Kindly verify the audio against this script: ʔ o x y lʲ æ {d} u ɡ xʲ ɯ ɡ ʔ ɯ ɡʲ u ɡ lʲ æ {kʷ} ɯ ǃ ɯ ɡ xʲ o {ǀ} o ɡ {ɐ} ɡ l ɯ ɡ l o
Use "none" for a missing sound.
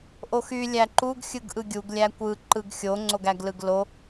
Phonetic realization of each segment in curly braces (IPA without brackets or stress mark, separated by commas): ǃ, kʷ, ŋ͡ǀ, æ